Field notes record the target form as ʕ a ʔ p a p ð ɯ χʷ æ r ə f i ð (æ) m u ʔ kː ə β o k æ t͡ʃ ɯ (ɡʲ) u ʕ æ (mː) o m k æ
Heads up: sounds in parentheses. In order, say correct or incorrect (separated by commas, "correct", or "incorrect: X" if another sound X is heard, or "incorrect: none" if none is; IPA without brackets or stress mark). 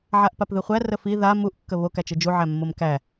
incorrect: a, incorrect: d͡ʒ, correct